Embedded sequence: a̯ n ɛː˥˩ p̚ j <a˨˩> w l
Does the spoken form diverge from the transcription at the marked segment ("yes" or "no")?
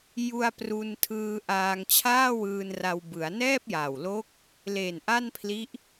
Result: no